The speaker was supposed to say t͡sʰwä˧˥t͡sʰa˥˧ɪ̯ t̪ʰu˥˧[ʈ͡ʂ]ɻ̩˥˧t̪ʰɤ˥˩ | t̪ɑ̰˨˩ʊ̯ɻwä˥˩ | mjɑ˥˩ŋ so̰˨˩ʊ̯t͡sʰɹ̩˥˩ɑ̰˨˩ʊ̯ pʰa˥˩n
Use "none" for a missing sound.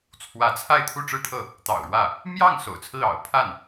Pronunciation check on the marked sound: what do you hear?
ʈ͡ʂ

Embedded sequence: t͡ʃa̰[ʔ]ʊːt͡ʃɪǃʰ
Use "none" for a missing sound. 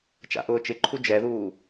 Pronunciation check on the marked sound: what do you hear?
ʔ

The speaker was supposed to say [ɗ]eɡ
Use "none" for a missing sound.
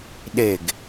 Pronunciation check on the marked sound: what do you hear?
ɗ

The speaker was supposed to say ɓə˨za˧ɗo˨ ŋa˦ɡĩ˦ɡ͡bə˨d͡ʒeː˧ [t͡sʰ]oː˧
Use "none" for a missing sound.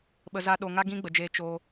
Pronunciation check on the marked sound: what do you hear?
t͡ʃ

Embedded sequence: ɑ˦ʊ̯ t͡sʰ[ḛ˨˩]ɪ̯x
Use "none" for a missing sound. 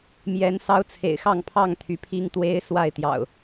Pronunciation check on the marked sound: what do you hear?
ḛ˨˩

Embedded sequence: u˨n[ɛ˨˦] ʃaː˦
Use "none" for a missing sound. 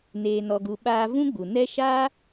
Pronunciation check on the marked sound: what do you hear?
ɛ˦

